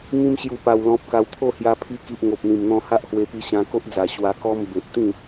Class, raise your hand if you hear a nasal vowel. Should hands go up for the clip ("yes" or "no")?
yes